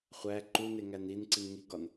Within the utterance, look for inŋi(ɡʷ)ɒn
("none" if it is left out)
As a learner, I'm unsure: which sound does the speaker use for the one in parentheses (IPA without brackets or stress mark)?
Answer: ɡ